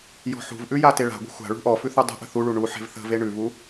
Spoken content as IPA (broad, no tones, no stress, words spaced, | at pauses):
jɔ̤ħṳvʔʉ jateɭa̤ɡʷə̤ xʷa̤ɭṳ ʔɔfʉ θudˤə̤ʔə̤ θuɭu ɳu ħe̤vθə̤ve ɳʉvu